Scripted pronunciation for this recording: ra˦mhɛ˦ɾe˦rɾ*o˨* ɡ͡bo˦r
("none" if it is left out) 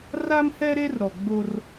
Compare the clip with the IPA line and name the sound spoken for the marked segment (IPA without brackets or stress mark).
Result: ɔ˨